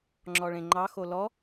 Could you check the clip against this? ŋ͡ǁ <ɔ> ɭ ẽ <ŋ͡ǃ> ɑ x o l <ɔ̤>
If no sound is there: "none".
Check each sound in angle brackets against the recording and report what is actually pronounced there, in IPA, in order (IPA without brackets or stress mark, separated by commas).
ɔ, ŋ͡ǃ, ɔ